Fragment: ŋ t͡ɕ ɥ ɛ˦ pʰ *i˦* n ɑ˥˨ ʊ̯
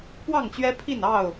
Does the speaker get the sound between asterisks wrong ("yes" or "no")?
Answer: yes